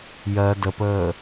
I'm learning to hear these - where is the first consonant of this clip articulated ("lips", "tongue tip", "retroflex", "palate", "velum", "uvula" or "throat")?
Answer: palate